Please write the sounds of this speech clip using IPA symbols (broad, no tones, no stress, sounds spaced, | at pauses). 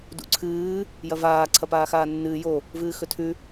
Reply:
d ṵ ǀʰ ɨː | j ɐ v aː ǀʰ ɐ p aː x aː nː ɨː j o | v ɨː x ɵ tʰ ʉ